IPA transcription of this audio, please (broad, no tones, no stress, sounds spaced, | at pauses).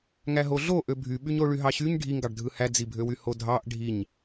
ŋ æ ɦ o ɮ o ʔ ø bʱ y ɓ y ɲ o ɭ y ɦ ɑ ɕ y ɲ ɖʱ i ŋ ɡ ɑ ɖ dʱ ɯ h æ d͡z i bʱ ø w y h o dʱ ɑ ʔ ɖʱ i ɲ